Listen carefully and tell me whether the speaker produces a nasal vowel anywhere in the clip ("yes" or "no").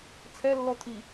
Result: no